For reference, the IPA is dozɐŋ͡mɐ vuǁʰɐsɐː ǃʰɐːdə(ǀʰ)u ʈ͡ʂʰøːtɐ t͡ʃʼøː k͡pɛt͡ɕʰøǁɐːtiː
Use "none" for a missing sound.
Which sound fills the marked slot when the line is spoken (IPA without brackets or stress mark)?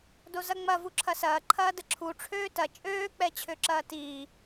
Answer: ǁʰ